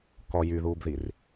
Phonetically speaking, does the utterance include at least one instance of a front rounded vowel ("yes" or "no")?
yes